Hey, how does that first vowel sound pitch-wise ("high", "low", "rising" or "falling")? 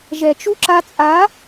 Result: low